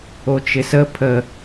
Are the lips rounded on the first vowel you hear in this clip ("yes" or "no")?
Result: yes